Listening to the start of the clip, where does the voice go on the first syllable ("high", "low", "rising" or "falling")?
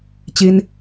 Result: high